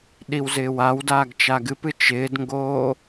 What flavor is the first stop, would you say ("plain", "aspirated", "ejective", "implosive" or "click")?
implosive